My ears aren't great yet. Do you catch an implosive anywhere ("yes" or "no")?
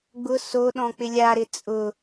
yes